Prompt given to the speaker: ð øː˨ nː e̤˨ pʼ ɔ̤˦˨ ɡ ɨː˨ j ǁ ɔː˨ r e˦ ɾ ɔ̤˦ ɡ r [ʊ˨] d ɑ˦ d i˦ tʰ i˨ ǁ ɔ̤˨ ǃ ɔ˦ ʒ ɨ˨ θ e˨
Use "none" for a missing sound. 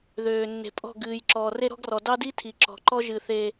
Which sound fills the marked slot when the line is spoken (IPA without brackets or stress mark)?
ɔ˨